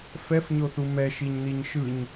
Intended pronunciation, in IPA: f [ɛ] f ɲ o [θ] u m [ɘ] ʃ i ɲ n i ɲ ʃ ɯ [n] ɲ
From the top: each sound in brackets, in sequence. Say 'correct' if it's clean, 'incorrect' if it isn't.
correct, correct, incorrect, incorrect

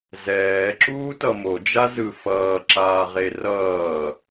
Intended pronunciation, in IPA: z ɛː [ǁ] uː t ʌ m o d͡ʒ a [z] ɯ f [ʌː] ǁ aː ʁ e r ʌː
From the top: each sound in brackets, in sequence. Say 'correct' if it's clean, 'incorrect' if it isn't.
correct, correct, correct

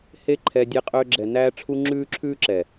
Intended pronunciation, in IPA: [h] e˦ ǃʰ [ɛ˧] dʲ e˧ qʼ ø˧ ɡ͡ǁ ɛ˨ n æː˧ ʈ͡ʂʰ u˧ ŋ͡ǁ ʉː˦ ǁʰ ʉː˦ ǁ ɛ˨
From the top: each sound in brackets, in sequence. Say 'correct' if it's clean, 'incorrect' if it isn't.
correct, correct

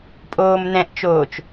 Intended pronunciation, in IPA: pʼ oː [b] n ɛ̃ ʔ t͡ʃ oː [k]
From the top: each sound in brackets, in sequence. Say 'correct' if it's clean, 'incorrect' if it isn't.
incorrect, incorrect

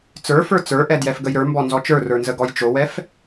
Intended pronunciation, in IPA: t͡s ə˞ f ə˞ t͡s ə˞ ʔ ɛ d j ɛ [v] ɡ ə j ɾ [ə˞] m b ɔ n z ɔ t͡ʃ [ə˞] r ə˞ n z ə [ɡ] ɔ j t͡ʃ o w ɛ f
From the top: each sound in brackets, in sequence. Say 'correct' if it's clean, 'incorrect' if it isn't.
incorrect, correct, correct, correct

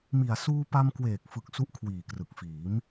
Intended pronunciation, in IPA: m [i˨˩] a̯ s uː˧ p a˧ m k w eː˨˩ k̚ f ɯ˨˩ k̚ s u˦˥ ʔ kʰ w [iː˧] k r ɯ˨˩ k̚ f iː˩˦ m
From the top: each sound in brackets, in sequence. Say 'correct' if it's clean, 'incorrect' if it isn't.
correct, incorrect

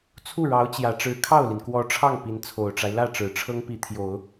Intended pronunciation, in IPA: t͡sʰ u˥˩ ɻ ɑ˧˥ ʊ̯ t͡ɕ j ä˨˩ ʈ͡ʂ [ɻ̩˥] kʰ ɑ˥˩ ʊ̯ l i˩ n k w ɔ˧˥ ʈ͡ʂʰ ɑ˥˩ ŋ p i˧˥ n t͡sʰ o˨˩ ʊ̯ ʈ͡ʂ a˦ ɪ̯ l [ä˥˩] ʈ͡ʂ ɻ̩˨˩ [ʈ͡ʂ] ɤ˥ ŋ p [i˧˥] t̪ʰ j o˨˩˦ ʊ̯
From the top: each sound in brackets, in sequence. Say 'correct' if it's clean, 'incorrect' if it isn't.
incorrect, correct, incorrect, correct

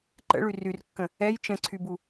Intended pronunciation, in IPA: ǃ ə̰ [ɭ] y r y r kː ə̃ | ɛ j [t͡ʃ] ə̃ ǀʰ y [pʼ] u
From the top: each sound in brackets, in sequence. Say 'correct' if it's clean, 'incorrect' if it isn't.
correct, correct, incorrect

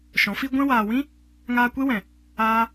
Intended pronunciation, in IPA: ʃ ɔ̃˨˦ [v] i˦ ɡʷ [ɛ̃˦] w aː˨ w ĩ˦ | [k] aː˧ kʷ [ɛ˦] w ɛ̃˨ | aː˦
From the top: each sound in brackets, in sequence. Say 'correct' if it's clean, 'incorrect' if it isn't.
incorrect, incorrect, incorrect, incorrect

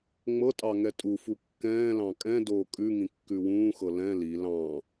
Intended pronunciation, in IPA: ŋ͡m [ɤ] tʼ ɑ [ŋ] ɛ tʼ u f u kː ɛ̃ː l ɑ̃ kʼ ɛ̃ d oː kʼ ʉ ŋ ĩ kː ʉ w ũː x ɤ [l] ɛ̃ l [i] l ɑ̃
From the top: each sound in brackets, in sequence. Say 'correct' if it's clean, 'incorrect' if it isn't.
correct, correct, correct, correct

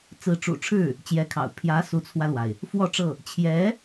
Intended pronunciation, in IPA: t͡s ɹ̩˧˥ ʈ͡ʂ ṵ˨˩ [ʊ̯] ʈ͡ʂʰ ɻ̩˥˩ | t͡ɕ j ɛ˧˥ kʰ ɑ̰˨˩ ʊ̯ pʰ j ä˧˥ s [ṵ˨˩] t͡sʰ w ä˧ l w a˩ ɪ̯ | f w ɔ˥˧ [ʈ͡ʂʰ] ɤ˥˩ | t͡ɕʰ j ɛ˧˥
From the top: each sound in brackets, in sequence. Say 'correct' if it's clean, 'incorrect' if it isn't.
incorrect, incorrect, incorrect

